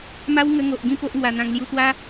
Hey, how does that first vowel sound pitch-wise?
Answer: high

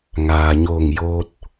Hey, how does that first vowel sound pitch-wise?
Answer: low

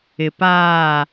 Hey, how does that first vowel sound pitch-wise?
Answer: low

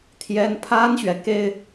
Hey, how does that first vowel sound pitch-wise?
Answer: high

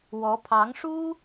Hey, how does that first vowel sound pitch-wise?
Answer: rising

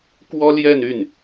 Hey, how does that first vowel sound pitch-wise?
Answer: high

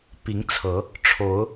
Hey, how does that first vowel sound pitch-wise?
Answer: rising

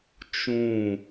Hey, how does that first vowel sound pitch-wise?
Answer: falling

